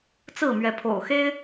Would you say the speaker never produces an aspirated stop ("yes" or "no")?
no